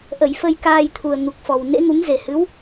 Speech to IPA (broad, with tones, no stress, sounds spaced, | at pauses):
ʔ ə˧˩ j f ə˧ j k aː˧ j t̪ʰ u˨˩ ə̯ ŋ u˨˩ k̚ f ɔ˨˩ w n ḛ˧˥ ŋ u˨˦ ŋ z e˨˩ h ɨ˨˦ w